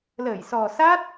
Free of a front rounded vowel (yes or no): yes